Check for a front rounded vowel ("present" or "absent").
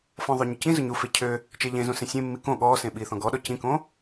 present